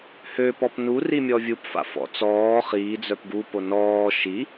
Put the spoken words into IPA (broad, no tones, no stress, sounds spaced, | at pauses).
h ø p ɔ p n u r i mʲ ɔ vʲ u p f a̰ f ɔ̰ t͡s ɔː χ iː d͡z œ p ɡ u p o n ɔː ʃ i